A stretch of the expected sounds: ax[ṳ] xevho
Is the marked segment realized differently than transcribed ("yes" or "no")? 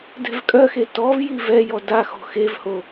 yes